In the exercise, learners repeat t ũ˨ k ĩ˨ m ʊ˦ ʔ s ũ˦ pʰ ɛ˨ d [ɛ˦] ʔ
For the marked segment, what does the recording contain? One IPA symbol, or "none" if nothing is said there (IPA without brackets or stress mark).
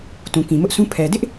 ɪ˦